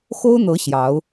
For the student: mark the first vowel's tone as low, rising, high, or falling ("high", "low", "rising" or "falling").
high